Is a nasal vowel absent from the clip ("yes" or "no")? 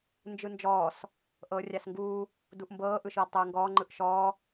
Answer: yes